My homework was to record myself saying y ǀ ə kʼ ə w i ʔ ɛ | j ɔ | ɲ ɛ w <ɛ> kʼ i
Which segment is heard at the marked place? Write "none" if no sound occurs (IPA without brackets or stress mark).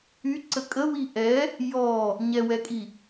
ɛ